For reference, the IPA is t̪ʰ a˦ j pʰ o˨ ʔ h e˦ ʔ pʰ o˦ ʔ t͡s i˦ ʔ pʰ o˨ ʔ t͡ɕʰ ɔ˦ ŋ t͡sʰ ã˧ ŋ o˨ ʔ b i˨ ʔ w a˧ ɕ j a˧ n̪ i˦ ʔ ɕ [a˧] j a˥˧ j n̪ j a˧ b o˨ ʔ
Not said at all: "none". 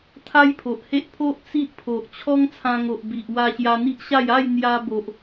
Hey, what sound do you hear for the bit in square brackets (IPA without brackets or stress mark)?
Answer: a˥˧